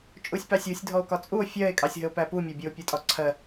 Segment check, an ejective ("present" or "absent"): present